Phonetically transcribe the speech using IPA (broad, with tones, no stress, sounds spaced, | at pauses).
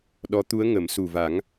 ɗ ɔ˧˥ t̪ u˧˥ ə̯ ŋ ə˨˩˦ m s u˨˩ v a˨˩˦ ŋ